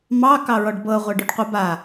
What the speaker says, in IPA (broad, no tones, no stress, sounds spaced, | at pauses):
m ɑ k ɑ ɹ ɔ ɖ b ɤ ʁʷ ɤ ɖ ʉ ɖ qʷ ə b a